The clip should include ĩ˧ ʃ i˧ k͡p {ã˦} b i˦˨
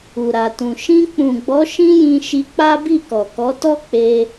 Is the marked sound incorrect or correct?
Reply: incorrect: a˦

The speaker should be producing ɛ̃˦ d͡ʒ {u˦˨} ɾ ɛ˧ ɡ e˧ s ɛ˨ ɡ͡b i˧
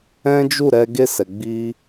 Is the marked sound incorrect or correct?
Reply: correct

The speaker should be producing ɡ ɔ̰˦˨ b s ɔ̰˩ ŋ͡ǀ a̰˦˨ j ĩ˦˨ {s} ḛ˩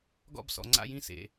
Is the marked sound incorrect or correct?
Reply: correct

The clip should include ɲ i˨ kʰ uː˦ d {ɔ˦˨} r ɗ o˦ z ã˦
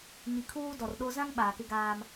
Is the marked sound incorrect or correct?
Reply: incorrect: ɔ˨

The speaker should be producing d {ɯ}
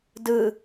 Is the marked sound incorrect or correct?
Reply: correct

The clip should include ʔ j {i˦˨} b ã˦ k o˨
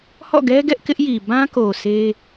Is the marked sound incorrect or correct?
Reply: incorrect: i˨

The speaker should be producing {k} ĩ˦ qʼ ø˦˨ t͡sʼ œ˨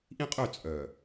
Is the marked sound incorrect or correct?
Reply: incorrect: ʔ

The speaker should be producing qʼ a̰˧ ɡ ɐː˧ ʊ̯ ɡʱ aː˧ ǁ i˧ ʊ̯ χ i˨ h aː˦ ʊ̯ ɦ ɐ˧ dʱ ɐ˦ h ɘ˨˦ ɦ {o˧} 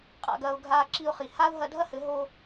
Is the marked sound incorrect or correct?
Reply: correct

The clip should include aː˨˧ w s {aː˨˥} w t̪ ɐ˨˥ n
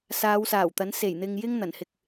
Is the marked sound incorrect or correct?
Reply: incorrect: aː˨˩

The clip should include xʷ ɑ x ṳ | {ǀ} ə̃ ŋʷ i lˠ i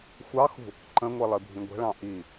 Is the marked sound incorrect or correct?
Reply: incorrect: ǃ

